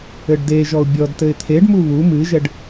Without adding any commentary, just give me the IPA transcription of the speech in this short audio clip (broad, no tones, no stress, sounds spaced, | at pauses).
ɘ ɖ d e ʒ ɔ ʊ̯ bʲ ɔ d t ɘ ɪ̯ t̪ʰ e ɖ m u β u m ɨ ʒ ɛ ɖ